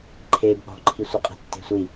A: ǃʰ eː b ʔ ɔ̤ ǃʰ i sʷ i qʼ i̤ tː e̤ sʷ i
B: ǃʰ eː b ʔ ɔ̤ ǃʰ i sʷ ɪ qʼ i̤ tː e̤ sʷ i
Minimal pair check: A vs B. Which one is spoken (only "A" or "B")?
B